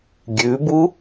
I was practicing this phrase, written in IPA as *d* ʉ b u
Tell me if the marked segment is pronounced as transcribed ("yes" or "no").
no